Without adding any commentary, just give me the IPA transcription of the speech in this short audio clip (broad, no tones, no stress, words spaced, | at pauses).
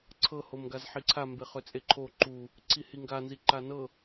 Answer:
ǀʰɤ homɡazħiǀʰa mbeχøt͡sʼeǃʰo ǃu | ǀʰihiŋɡa nziǃanɤ